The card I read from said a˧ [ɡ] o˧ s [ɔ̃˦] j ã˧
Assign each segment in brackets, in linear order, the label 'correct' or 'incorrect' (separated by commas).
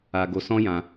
correct, correct